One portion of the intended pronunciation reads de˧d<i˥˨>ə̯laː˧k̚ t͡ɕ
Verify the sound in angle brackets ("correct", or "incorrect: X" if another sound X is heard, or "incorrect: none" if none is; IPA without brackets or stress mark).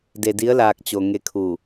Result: incorrect: i˧˥